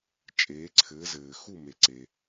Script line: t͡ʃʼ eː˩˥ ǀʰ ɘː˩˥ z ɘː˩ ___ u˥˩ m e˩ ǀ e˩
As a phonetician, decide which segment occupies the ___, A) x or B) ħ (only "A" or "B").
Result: A